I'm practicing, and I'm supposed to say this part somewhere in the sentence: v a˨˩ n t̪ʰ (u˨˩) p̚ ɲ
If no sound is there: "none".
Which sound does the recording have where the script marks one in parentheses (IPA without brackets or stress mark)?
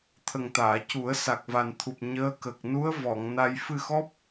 u˨˩